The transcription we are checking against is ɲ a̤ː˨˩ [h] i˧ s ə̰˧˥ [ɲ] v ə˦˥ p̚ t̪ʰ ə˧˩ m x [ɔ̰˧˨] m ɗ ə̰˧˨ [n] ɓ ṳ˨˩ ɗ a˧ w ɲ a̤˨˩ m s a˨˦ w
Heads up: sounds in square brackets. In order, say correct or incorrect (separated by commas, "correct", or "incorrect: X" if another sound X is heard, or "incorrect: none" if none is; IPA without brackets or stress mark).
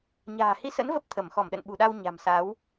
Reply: correct, incorrect: n, incorrect: ɔ˧˩, correct